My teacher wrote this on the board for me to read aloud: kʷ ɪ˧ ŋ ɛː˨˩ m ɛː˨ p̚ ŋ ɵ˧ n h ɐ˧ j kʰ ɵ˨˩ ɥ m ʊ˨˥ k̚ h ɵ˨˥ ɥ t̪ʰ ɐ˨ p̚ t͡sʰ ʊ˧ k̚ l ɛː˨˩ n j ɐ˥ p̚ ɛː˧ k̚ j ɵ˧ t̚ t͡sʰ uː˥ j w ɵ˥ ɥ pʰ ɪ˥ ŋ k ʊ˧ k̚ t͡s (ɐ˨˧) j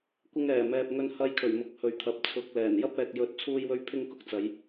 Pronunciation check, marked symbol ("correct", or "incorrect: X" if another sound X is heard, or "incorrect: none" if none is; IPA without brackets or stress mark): correct